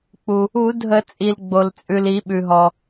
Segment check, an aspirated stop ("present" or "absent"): absent